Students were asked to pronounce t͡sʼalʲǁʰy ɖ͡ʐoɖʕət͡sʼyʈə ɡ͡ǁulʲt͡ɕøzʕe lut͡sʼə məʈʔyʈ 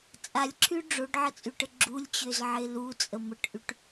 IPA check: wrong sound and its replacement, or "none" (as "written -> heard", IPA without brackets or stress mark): none